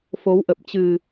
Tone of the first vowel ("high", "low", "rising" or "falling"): rising